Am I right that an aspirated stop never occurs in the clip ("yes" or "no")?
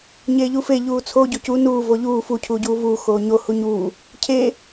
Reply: no